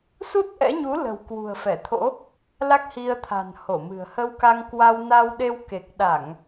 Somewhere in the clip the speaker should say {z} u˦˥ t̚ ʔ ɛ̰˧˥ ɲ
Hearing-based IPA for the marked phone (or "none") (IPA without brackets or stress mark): s